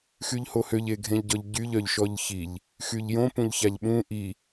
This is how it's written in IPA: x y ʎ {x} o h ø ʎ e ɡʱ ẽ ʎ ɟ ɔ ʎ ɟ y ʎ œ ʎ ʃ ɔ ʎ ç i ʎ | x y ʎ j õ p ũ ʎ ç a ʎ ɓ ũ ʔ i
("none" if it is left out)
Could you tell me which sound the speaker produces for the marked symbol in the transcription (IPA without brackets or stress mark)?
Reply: h